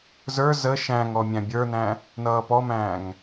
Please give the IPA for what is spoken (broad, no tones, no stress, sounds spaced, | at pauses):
z ə˞ z ə ʃ æ̃ ŋ ɔ mʲ æ̃ bʲ ə˞ n æ̃ | n ʌː p ɔ m æ̃ː ŋ